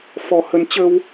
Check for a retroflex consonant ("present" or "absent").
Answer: absent